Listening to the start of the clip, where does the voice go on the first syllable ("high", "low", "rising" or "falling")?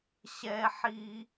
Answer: high